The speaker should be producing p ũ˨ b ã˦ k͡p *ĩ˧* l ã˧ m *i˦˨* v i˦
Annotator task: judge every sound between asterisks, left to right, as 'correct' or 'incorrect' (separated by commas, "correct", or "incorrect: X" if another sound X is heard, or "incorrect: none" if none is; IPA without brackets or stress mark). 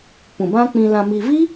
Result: correct, incorrect: i˧